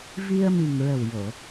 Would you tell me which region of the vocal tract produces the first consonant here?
lips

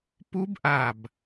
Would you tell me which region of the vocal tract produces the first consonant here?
lips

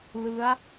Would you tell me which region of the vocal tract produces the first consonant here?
tongue tip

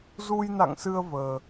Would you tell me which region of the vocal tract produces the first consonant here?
tongue tip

